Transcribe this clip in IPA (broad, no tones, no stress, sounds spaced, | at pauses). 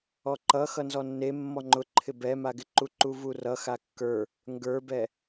ɔ ǃ ʌ x ʌ n z ɔ nː e mː ɔ ŋ͡ǃ ʊ ǃʰ ɪ b ɛ m a ɡ ɪ ǃ u ǃ u v u r ʌ x a kː ə˞ | ŋ ɡ ə˞ b ɛ